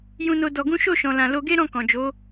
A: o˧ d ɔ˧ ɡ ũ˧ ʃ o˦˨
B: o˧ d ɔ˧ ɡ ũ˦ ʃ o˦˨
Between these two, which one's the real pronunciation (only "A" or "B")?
B